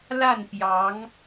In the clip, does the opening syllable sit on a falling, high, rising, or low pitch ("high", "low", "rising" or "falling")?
falling